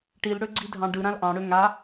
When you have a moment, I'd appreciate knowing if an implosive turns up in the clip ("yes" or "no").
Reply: no